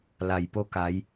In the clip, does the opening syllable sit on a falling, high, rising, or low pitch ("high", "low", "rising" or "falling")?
low